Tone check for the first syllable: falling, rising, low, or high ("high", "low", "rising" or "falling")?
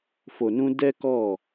low